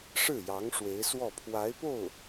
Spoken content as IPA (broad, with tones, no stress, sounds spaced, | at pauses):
ʂ ɻ̩˥˩ j ɑ˧˥ ŋ ʂ w e˧˥ ɪ̯ s w ɔ˥˩ pʰ w a˧˥ ɪ̯ p o˥˩ ʊ̯